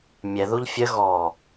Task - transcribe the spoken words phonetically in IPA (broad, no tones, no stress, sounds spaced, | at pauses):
mʲ ɛ ð u ʎ fʲ ə ɣ ɔ